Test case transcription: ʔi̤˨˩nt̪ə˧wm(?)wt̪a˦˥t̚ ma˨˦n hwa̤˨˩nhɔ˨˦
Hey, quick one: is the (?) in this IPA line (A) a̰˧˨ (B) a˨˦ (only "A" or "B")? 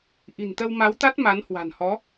B